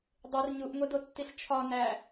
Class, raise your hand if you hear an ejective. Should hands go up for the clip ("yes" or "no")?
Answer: no